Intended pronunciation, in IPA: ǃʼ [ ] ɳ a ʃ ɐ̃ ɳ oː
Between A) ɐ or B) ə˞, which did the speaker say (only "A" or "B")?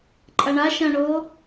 A